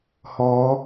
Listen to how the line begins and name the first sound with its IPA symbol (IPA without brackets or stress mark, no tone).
h